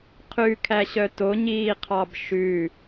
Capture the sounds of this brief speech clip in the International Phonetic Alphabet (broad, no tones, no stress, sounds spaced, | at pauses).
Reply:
qʰ ʉ kʰ æ ɕ œ t o ɲ iː qʰ ɑ b ʃ ʉ